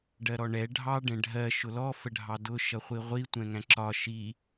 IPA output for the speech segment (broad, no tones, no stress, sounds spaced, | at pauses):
ɖ ɜ ɾ ɔ ɳ ɛ ɖʱ ɑ ɖ ɛ̃ ɖʱ ɜ ʃ ʊ l ɔ f ə ɖʱ ɑ d ʊ ʃ ʌ χʷ i ʁʷ i tʷ ɛ̃ ŋ æ̃ ǁ ɒ ʃ i